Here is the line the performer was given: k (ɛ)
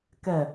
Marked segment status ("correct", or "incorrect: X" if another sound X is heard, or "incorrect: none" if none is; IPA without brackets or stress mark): correct